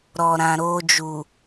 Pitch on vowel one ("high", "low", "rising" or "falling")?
low